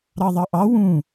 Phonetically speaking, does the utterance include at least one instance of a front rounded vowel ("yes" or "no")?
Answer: no